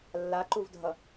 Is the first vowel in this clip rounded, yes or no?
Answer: no